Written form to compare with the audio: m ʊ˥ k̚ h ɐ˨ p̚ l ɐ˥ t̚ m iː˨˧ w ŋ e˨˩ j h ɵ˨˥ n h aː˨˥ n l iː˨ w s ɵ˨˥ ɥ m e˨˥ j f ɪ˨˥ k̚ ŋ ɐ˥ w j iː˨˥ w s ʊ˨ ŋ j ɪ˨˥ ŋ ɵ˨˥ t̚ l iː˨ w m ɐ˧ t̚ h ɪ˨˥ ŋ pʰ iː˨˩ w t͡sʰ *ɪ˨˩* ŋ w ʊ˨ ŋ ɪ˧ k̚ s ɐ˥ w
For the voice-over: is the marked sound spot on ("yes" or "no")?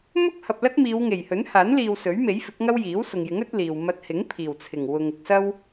yes